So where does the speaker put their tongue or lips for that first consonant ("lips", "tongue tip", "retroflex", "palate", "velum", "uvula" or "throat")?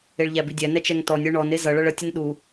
retroflex